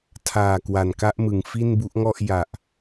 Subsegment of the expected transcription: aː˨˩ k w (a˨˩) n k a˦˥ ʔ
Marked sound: correct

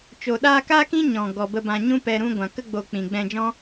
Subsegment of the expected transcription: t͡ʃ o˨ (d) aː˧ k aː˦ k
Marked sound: incorrect: ɗ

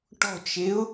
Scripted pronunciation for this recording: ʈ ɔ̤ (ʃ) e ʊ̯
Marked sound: incorrect: t͡ʃ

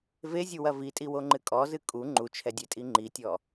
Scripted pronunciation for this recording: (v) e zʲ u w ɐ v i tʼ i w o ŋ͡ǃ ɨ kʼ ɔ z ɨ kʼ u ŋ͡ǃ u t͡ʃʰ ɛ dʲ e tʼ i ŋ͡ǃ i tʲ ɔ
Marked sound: correct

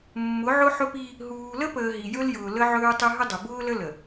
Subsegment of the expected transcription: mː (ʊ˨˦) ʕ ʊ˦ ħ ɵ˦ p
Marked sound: correct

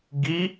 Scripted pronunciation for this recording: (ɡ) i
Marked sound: correct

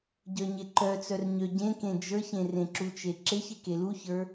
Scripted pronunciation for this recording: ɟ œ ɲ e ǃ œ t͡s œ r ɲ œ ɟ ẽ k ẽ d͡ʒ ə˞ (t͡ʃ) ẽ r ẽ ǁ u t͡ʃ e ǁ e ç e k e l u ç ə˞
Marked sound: incorrect: ç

